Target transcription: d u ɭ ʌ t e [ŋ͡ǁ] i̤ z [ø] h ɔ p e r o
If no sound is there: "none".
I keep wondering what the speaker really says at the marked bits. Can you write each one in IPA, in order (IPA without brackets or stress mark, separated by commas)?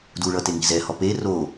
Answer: ŋ, ɛ